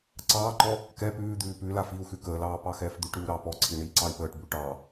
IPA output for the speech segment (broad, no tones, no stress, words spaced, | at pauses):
ǀɑːǃɔ | kɛ pʉːd̪ʉː pʉ lafiu̯xʉ kəːlɑː pɑxɛːfd̪ʉʈɾʉu̯ ɾɑ pɔǀʰi ɳiːǀɑi̯pəːʈbʉ ʈɑ